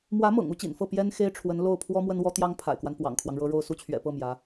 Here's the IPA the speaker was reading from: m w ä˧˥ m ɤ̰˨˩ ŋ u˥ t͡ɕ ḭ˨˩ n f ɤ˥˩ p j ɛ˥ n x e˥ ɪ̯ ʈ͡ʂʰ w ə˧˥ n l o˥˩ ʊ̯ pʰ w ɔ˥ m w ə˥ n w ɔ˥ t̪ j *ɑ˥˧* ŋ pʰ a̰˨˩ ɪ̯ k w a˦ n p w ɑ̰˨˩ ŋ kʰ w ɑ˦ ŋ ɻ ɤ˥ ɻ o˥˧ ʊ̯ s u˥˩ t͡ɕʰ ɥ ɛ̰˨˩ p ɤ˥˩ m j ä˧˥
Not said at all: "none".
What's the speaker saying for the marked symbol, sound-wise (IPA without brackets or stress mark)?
ɑ˥